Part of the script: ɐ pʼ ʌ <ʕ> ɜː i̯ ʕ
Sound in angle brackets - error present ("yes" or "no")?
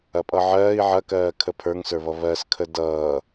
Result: no